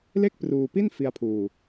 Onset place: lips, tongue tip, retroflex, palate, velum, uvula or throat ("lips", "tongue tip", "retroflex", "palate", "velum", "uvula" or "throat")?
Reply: tongue tip